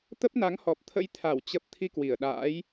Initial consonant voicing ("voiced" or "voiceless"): voiceless